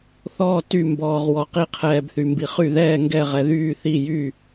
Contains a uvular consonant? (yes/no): yes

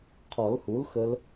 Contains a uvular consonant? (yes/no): yes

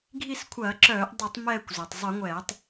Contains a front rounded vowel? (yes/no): yes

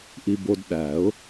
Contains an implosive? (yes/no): yes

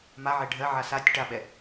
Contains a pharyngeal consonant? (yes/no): yes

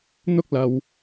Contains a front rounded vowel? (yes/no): no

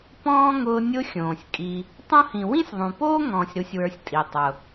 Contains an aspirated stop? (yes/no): no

